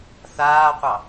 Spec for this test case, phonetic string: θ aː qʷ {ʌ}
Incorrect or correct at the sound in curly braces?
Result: incorrect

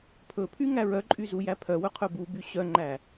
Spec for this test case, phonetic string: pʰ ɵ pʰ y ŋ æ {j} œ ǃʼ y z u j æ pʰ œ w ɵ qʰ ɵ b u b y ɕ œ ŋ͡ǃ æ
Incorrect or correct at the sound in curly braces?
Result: incorrect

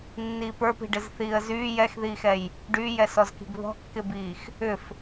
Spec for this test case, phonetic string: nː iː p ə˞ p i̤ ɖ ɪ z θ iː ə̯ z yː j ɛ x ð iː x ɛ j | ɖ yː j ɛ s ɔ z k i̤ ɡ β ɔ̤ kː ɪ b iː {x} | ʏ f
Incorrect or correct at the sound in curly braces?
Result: correct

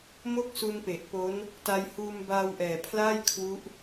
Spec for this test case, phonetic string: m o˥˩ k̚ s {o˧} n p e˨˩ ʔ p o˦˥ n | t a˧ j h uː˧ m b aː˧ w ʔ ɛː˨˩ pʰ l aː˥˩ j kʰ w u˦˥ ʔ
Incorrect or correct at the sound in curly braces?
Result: incorrect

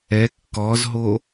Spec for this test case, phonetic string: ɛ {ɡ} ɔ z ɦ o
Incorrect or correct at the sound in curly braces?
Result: incorrect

